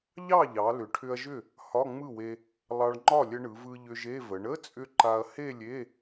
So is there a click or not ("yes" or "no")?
yes